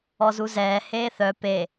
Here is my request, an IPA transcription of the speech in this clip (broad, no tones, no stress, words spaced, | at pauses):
ɔzuzɛː heːθœ pe